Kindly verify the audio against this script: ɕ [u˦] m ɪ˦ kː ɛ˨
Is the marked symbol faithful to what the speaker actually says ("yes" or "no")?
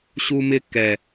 yes